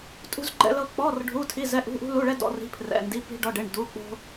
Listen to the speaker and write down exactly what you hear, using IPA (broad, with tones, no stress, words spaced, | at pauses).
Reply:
tʼṳ˥zɡ͡ǃɛ̰˥lɤ˥ k͡pɔ˧˥˧r ɖʱu˧˥˧tʰi˧˥˧ zɛ˧˥˧ʔṳ˧˥˧ʔṳ˥ lu˧˥˧ɭɛ˥dɔ̰˧˥˧ ri̤˧˥˧pʰrɛ̰˧˥˧ndi˧˥˧ pi̤˥ɖɔ˧˥˧ɖe˧˥˧ɳ du˧˥˧k͡po̤˥